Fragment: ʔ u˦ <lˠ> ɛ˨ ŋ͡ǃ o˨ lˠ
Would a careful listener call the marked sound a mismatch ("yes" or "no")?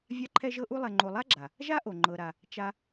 no